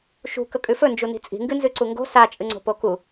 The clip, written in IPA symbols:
ʃ ṳ k ɵ kʼ ʉ f ɵ n d͡ʒ u n i̤ t͡sʼ i̤ ŋ ɡ ɨ n z ʉ ǀ u ŋ ɡ o̤ s a t͡ʃʼ ɨ ŋ͡ǀ o̤ p o k u

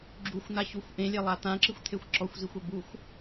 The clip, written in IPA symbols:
ɡ͡ǁ u xʷ n̪ a ç u xʷ ʔ ẽ lʲ e lˠ a t̪ ã ǁ ɨ xʷ t̪ʰ e xʷ ǁ ɔ xʷ z i xʷ ɐ b u xʷ

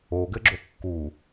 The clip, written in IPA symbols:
o ɡ ɘ ɡ͡ǁ o kː u

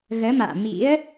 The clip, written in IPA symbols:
ɣ əː˨˦ m a̰ː˧˨ m ḭ˧˥ ə̯

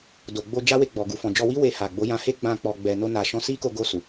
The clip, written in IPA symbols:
d o˨ ɡ͡b o˧ d͡ʒ a˦ w e˦˨ ɡ͡b ɔ˨ ɡ u˨ f ɔ̃˨ d͡ʒ ɔ˧ w i˦ w e˧ h a˨ ɡ͡b o˨˦ j ã˧ h e˦ ɡ͡b ã˧ k͡p ɔ˨ ɡ͡b ɛ˨ n o˧ n a˨ ʃ ɔ̃˧ s i˦ k o˧ ɡ o˧ s u˨

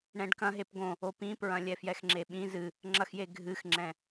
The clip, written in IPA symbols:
ɳ ɛ̃ ɖ k ɐ̃ ɦ e p ɡ õ | o p ĩ p ɹ ɐ̃ lʲ ɛ f j ɛ x ŋ͡ǁ e ɓ ĩ z ɨ | ŋ͡ǁ ɐ x j e ɡʱ ɨ x ŋ͡ǁ ɛ̃

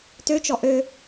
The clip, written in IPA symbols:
t ø t͡ʃ ɔ ʔ ø

